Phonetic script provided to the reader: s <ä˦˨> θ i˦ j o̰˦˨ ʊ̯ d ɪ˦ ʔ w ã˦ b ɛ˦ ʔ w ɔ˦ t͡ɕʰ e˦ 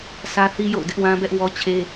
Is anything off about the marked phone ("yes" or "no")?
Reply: yes